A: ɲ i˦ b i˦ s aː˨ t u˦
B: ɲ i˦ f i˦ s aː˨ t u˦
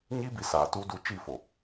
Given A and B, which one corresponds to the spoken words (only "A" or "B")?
A